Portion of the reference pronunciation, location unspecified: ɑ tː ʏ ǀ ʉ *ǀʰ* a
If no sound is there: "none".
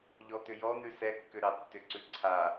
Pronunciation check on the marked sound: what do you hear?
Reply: ǀʰ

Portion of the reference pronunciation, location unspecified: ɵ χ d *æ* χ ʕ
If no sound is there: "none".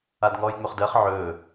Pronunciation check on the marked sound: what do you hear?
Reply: ɜ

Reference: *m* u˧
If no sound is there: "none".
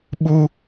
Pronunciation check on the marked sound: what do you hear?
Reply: ɓ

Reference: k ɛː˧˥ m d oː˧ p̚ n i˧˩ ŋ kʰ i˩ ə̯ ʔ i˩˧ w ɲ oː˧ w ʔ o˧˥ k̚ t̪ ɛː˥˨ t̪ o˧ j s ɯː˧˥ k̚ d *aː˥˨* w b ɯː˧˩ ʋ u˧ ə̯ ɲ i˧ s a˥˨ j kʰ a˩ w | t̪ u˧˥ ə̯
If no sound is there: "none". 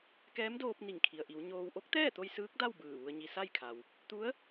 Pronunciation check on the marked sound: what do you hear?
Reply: a˥˨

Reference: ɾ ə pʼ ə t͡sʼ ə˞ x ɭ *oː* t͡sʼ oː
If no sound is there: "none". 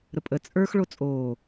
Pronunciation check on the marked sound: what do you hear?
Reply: o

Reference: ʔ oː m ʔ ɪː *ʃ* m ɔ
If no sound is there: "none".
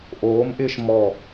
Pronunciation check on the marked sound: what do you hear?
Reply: ʃ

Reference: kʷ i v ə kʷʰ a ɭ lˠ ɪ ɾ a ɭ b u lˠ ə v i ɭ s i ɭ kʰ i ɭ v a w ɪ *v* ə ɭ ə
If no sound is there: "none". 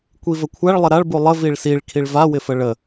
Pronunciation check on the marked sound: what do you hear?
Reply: f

